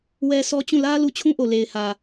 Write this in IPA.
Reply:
w ɛ˦ s ɔ˦ t͡ɕ ũ˦˨ l ä˦ l u˦˨ t͡ɕʰ ũ˦ ʔ o˨ l e˨ ɪ̯ h ä˨

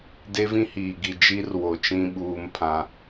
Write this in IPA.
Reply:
d e˦ v ĩ˦ h iː˨ ɡ i˨ d͡ʒ i˦ r w o˨ t͡ʃ ĩ˦ ɓ uː˦ m pʰ ã˦

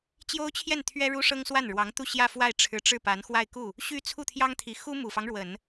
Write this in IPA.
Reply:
t͡ɕ j o˥ ʊ̯ t͡ɕʰ j ɛ˥˩ n t̪ʰ ɥ ɛ˥ ɻ u˥ ʂ ɤ˥ ŋ s w a˥˩ n ɻ w ɑ˧˥ ŋ t̪ u˥˧ ɕ j ä˥˧ f w a˥˩ ɪ̯ ʈ͡ʂʰ ɻ̩˧˥ ʈ͡ʂ ɻ̩˥˩ p a˧˥ n x w a˥˧ ɪ̯ k u˥˩ | ɕ y˥ t͡sʰ u˥˩ t̪ʰ j ɑ˥ ŋ t̪ʰ i˧˥ x u˥ m u˨˩ f ɑ˦ ŋ ɻ w ə˨˩˦ n

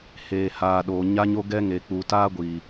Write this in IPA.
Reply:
h eː˨ h aː˨ ɗ oː˨ ɲ a˦ ɲ o˦ ɡ ɛ˦ ŋ e˨ k͡p u˨ t aː˦ ɡʷ i˨

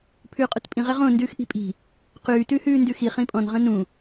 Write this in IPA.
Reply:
pʰ ʉː qʼ u t pʼ ĩ ʁ ɛ ʁ õ n d ʉː x ʔ i̤ pʼ i̤ | q ʉː t ʉ h ʉː n d ʉ x i χ ĩ pʼ ɔ̃ n ʁ ə̃ n ũ

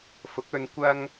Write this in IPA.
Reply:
f ʊ˨˥ k̚ ɵ˧ n kʷ ɐ˧ ŋ

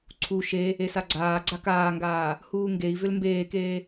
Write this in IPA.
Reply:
ǀʰ u ʃ e | e s a ɡ͡ǀ aː ɡ͡ǀ a k aː ŋ ɡ aː | h uː ŋ ɡ e i̯ v ʏ l m b eː k eː

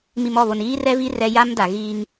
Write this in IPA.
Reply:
m i˨ m ɔ˦˨ β o˨ n iː˦ r ɛ˦ v i˦ r ɛ˦ j a˦ m d a˨ ɣ iː˦ ŋ

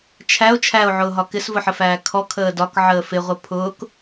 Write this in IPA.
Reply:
t͡ʃʰ æ o̯ t͡ʃʰ æ o̯ ʕ ʊː ɦ ɒ k ɪ s v ʊ ħ ə f æː kʰ ɔ kʰ əː d ɒ k ʕ əː f ɪ ʁʷ ə pʰ ʊː k

